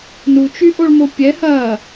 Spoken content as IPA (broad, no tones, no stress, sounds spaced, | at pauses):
n u t͡ʃ y ʔ o ɭ m o pʲ ɛ h ɐ